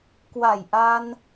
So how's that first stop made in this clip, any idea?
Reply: plain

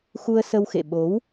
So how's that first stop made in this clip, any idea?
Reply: implosive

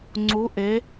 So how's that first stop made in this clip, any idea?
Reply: click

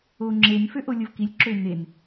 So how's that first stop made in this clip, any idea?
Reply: click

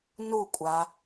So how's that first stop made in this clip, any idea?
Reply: ejective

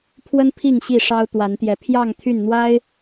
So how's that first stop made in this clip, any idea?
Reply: aspirated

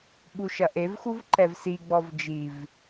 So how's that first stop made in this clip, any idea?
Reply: implosive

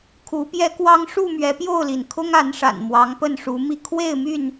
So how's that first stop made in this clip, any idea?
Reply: aspirated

